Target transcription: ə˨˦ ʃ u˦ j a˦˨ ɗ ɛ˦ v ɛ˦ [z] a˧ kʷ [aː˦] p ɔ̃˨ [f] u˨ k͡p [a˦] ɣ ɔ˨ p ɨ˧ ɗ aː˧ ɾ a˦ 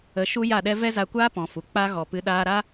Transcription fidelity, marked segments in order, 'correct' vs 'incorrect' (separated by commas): correct, correct, correct, correct